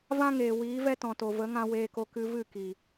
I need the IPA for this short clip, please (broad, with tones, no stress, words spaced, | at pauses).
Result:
vã˦ŋeː˨ wiː˨˦vɛ˦tɔ̃˨to˨ və˨˦ŋã˧ weː˧ko˧ kɨ˧vɨ˦˨ ki˨